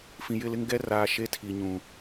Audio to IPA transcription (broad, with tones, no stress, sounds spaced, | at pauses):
f ĩ˨ j ɪ˦˨ l ɪ˦ ŋ ɡ ɛ˦ r aː˨ ʃ e˦ tʰ i˨ ɲ ũ˨